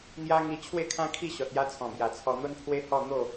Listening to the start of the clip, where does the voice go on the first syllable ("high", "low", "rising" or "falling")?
high